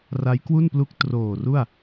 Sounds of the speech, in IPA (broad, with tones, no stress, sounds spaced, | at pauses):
r a˦˥ j k w u˥˩ n p l u˦˥ k̚ t r oː˨˩ r u˥˩ a̯